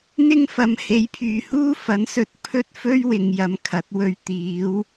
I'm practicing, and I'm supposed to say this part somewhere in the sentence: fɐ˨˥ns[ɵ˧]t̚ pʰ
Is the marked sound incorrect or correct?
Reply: correct